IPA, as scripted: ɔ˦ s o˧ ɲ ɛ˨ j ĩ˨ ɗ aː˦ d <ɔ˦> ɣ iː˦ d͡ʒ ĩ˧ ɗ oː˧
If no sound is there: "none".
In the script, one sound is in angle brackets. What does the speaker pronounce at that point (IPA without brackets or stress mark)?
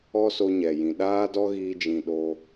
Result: ɔ˦